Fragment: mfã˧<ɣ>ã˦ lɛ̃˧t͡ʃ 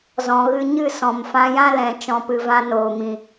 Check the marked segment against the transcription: incorrect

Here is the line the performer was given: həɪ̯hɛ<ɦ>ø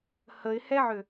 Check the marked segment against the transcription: incorrect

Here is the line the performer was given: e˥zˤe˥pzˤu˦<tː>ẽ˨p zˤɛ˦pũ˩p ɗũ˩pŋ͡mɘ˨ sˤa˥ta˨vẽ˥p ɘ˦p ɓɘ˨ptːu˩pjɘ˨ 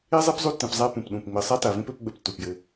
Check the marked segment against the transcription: correct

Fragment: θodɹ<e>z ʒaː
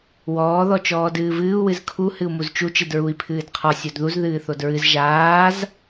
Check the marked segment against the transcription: incorrect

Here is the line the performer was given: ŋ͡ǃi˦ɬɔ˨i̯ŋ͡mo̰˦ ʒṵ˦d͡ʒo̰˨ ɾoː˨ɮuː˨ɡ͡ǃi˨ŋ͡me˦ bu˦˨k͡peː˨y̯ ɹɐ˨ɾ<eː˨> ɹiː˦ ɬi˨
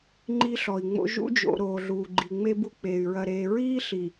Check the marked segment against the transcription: correct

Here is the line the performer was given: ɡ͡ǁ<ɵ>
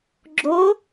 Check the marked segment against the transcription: incorrect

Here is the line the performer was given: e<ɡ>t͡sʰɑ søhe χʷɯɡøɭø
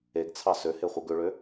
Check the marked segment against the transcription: correct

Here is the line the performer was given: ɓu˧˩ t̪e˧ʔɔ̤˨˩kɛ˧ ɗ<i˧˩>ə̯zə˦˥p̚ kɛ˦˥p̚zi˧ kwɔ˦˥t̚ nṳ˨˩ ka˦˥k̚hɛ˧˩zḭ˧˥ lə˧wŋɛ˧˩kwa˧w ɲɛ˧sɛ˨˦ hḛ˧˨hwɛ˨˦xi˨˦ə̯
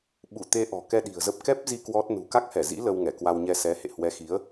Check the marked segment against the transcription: incorrect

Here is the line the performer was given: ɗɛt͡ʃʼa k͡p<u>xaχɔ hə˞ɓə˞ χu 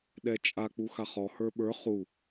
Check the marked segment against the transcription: correct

